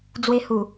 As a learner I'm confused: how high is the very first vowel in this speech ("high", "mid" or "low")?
mid